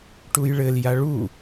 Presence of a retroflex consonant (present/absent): present